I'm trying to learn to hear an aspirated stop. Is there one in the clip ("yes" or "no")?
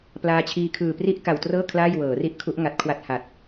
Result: yes